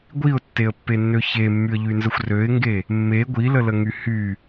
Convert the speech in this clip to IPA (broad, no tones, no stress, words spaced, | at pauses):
ɡʷiʊ̯tːeə̯pːenːø çemːyə̯ʎynzəxʷ røɪ̯ŋɡe | mːe ɡʷilələŋy hy